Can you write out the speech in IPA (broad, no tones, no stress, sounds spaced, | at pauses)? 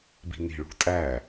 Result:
b i̤ n i̤ ɭ ṳ tʼ æ